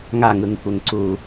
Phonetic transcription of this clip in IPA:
ŋ a ŋ ɯ ŋ kʷ e ŋ ǀ u

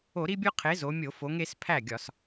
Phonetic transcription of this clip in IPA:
o˧˩˧ ɾ i˦ bʲ o˦ qʰ e˨˥ z o˩˧ mʲ o˧˩˧ f o˩˧ ŋ e˩˧ s pʰ æ˥˩ ɡʲ ɒ˧˩˧ s

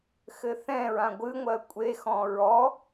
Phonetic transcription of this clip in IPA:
x ɘ θ ɛ̃ ɹ ã ɡʷ ɨ ŋʷ ɜ kʷʼ e x ɔ̃ ɹ ɔ

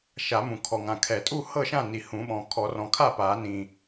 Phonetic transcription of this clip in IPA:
ʃ a˨˩˦ m ũ˨˩ kʰ ɔ˨˩ ŋ ã˨˩ kʰ ɛ˨˩˦ tʼ u˥˨ h ɤ˥˨ ʃ ã˥˨ n i˨˩ h ũ˨˩˦ ɓ ɔ̃˨˩ kʰ ɔ˨˩˦ r ɔ̃˨˩˦ kʰ a˥˨ p a˨˩˦ n ĩ˨˩

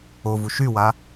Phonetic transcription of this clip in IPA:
o v u ʃ y w a

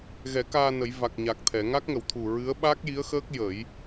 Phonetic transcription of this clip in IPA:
ɣ ɛ˨˩˦ k aː˧ n ə˨˩˦ j v a˨˩ k̚ ɲ a˨˩ k̚ t̪ʰ ɛ˨˩˨ ŋ a˦˥ k̚ ŋ ə˨˩˨ w t̪ʰ u˨˩ ɹ ɨ˧˥ ə̯ ɓ a˦˥ k̚ j i˧˥ ə̯ x əː˦˥ k̚ j ə˨˩˦ j

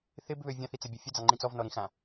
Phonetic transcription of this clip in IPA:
θ ɪ b β ø vʲ ɑ̃ θ i t͡s ə bʲ ɐ fʲ ə d͡z ɑ ŋ͡ǃ ĩ t͡s ɔ v n ɔ ɾ ĩ x ã

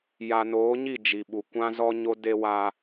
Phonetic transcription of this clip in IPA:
j a˨ n oː˨˦ ɲ i˦˨ d͡ʒ i˨ ɓ u˨ kʷ ã˦ z ɔ˦ ɲ o˦ d e˦ w aː˦

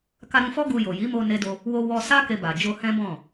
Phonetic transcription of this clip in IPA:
k a˧ ɾ ũ˧ f ɔ˦ ɡ u˧ j o˨ j i˨˦ m o˧ n e˦ d o˦ | w o˧ w ɔ˧ s a˦ k e˧ b a˨ d͡ʒ o˧ h ɛ̃˦ b ɔ̃˦˨

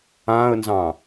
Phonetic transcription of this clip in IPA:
ã ə̯ n z ɑ̃

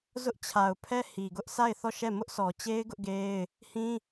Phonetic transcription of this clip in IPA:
z ʊ˦ ʔ t͡ɕʰ a˨ ʊ̯ pʰ ɛ˦ h i˨ ɡ ʊ˦ ʔ sʰ a˦˨ ɪ̯ θ ɔ˦˨ ʃ ɛ˦˨ m ʊ˦ ʔ sʰ ɔ˨ t͡ɕ e˦ ɪ̯ ɡ ʊ˦ ʔ ɡ e˦ ɪ̯ | h ĩ˦

